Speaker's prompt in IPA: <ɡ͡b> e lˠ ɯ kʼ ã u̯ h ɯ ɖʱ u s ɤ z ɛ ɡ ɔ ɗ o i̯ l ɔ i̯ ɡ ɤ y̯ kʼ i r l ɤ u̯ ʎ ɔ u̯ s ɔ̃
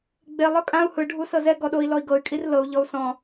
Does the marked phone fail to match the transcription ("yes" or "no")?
no